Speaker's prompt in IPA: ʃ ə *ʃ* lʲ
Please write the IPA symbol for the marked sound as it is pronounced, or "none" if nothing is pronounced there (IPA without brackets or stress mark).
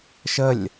none